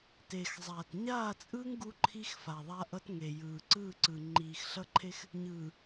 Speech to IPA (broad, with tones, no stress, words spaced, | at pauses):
te˨xzˤaː˨t ɲaː˦˨t͡sʼɯː˦ŋ ɡu˦ǃʰi˦xfa˨ ðˤa˦ʔʌ˦t ŋe˨jɯː˨ ǀɯː˦˨ǀɯː˨ ŋ͡ǃiː˨xɬʌ˦ǃʰe˦x | ɲɯː˨